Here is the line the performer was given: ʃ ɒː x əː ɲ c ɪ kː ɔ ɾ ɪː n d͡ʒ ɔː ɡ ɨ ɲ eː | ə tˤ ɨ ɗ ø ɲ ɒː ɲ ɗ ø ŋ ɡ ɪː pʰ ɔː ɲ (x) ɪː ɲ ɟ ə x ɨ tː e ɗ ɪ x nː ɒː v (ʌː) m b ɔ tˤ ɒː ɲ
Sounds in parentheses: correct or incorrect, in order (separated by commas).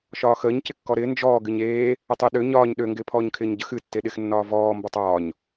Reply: incorrect, incorrect